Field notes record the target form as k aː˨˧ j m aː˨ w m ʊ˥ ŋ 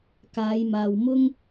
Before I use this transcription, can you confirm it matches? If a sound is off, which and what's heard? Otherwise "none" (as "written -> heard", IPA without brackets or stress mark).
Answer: none